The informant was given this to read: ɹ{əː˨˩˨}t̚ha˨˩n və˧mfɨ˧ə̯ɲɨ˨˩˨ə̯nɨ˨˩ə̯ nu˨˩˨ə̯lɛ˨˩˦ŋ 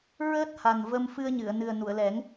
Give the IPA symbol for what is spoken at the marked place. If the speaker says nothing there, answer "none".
əː˦˥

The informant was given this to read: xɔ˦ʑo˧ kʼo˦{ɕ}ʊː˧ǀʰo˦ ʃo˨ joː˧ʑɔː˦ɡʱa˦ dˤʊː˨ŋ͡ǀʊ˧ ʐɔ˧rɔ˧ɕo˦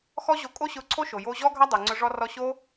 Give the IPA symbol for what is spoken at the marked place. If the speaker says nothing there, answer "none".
ɕ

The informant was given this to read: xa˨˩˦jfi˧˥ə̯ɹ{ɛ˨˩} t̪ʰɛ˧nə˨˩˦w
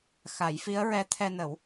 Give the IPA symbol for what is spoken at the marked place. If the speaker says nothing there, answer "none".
ɛ˧˥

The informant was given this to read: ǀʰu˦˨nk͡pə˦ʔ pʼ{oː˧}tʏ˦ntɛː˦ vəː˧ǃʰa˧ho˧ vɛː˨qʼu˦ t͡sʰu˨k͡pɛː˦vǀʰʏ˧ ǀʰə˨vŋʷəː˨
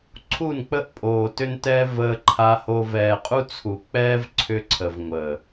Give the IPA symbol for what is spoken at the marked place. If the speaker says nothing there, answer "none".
oː˨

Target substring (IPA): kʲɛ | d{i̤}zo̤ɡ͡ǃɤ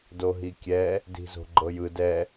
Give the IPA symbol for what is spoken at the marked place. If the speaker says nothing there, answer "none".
i̤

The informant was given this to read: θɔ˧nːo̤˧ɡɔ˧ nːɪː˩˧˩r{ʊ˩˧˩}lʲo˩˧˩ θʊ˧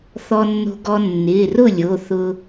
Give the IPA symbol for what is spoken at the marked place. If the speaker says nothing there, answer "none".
ʊ˥˩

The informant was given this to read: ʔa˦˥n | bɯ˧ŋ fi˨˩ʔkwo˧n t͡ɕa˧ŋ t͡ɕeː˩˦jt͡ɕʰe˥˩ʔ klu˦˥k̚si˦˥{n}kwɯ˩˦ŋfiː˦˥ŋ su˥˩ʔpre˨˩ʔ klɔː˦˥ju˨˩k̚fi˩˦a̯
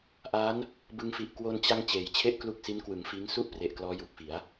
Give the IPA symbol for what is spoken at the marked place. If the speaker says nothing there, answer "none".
n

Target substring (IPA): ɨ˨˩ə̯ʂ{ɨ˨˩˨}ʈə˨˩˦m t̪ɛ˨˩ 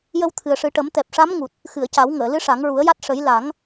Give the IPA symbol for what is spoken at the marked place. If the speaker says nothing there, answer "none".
ɨ˨˩˦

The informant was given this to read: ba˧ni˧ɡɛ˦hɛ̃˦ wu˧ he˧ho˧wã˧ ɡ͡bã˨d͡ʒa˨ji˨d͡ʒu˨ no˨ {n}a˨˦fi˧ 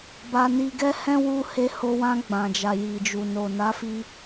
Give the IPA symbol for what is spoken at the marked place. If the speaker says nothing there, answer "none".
n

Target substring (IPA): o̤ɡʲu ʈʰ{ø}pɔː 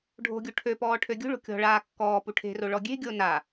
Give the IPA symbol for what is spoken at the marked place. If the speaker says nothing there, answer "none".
ø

